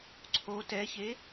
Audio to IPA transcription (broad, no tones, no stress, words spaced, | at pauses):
ǀʰo tɛçe